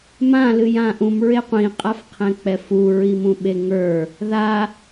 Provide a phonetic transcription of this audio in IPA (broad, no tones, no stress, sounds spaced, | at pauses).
m ã l ɨ j ã ʔ ũ m ɹ e qʷ ĩ qʼ a f qʰ ɛ̃ k͡p ɛ f u ɹ i m ũ ɓ e ŋ ə˞ | ð a